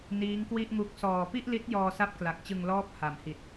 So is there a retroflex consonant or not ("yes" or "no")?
no